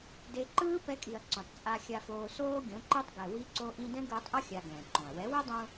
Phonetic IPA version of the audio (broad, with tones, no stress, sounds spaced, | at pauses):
d e˧ ǃ ɯː˦ p ɛ˧ kʼ i˨ ɐ̯ ǀ ũ˨ tˤ t͡sʼ a˧ xʲ a˧ f oː˧ s oː˦ ɡʲ õ˨˦ ǃ e˦ tˤ ɡ ɛ˨ w i˧ ǀ o˧ ʔ ĩ˧ d ɛ̃˦ ɡ ɯː˧ tˤ ʔ ʌ˦ xʲ a˧ ɡ ɛ̃˨ ǃ õ˨ ɐ̯ w ɛ˨˦ w ɛ˦ dˤ ũ˧